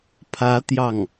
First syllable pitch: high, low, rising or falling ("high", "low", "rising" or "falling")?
rising